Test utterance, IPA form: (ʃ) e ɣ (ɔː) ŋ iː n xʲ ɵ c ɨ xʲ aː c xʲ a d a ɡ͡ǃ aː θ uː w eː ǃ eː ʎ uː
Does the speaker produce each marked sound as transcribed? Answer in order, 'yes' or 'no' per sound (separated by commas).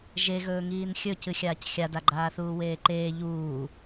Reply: no, no